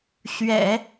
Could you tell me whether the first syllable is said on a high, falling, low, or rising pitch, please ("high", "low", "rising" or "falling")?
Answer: low